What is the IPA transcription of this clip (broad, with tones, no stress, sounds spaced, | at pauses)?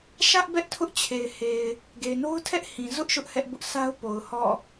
ʃ ä˦ ʔ b ɛ˦ ʔ tʰ ʊ˦ ʔ t͡ɕʰ e˨ ɪ̯ h e˨ ɪ̯ | ɡ e˨ ɪ̯ n o˦ ʊ̯ tʰ ɛ˦ ʔ h ĩ˨ z ʊ˦ ʔ ʃ ʊ˦ ʔ h ɛ˦ ʔ b ʊ˦ ʔ s a˦ ʊ̯ p o˨ ʊ̯ h ɔ̰˦˨